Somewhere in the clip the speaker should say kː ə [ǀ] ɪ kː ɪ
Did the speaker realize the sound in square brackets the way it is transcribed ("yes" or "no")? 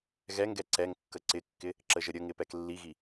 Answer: yes